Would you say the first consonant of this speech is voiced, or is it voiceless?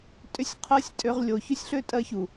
voiceless